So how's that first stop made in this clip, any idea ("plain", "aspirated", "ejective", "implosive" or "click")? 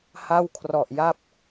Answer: aspirated